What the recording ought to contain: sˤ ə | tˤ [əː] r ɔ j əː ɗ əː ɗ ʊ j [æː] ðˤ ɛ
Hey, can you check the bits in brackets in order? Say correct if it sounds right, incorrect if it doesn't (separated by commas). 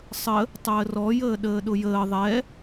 correct, incorrect